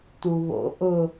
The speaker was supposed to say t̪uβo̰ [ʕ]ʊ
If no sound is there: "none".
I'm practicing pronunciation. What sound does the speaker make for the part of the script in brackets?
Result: ʔ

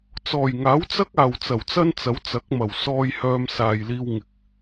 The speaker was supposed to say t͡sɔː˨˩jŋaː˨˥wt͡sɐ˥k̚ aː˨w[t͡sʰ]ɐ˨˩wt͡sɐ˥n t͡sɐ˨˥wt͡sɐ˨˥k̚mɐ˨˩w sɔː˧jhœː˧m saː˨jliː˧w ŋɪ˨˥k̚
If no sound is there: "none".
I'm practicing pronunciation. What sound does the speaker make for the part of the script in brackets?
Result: t͡s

